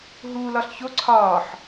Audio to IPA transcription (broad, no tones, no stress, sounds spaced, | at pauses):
ɦ uː l ɒ ɬ ç o ǀʰ ɒː ħ